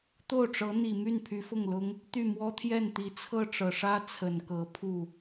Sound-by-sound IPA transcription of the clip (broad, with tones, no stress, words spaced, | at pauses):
t̪o˥˩ʊ̯ʈ͡ʂɤ˧˥ n̪i˨˩my˥˩n pʰy˧˥fʊ˥˩ŋlʊ˥ŋ | t̪y˥˩ mwɔ˥t̪ʰjɛ˥˩nt̪i˨˩ t͡sʰɤ˥˩ʈ͡ʂɤ˨˩ʂä˥ t͡sʰə˨˩nkɤ˧˥pʰu˥˩